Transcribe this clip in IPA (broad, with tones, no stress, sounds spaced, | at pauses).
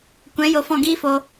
kʷ ɛ̃˨˦ j o˧ f ɔ̃˦˨ ɡ iː˦ f o˧